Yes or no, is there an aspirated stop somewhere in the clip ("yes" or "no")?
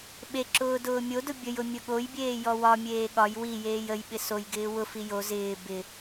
no